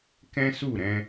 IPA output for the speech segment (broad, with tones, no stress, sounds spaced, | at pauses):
k ɛ̃˦ s u˦˨ ɾ ɛ̃˧